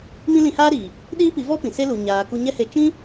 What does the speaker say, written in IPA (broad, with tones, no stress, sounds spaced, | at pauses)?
m ĩ˦ l ĩ˧ h aː˦ ɾ iː˨ | ɗ iː˦ p i˨˦ v ɔ˦ p ĩ˨ s e˦ l u˨ ɲ aː˨ k u˧ ɲ ɛ˦ h e˧ t͡ʃ ĩ˦